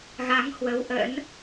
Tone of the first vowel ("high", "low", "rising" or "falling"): rising